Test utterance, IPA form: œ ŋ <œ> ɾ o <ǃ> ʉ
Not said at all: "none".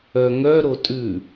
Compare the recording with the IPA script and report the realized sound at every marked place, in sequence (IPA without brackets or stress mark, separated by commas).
œ, tʼ